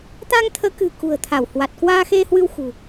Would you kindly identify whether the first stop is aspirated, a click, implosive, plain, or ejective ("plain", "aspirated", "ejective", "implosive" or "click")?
plain